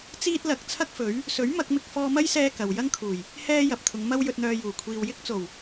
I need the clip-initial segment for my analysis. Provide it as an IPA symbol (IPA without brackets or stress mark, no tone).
t͡s